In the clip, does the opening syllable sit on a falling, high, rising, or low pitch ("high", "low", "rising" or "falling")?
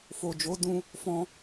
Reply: low